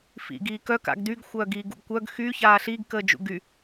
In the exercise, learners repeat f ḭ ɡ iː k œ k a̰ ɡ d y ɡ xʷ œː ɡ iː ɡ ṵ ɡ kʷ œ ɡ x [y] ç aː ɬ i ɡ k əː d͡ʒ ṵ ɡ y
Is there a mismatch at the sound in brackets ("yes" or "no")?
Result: no